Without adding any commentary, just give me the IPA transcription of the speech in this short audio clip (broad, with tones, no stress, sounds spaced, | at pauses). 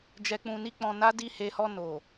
d͡ʒ ɛ˨ k͡p ũ˨ n i˧ k͡p ɔ̃˨ n a˨˦ d i˧ h e˨ h ɔ˧ n o˨